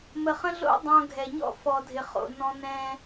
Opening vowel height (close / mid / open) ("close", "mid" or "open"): mid